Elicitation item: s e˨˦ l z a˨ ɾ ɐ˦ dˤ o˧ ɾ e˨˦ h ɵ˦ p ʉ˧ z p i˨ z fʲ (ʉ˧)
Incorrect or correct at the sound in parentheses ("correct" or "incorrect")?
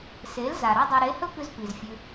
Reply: correct